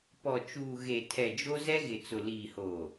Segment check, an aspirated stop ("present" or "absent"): present